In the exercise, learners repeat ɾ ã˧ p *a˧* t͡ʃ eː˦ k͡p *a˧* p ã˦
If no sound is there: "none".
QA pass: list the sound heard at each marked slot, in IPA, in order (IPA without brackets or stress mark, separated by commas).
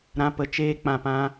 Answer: ə˧, ã˧